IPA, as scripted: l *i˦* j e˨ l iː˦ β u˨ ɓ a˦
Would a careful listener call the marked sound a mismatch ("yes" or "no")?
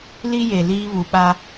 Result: no